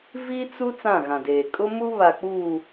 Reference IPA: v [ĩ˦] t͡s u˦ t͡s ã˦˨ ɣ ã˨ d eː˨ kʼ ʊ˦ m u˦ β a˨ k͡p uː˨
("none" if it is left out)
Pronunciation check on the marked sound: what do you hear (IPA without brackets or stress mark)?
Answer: i˦